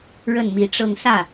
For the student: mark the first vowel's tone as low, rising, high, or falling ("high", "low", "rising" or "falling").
falling